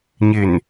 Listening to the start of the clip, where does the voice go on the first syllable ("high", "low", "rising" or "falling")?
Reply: low